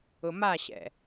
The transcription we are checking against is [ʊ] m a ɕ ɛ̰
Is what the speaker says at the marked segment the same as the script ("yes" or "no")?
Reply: yes